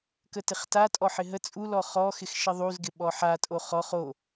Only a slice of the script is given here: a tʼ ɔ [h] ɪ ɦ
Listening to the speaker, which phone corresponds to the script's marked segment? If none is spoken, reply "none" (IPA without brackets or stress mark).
ħ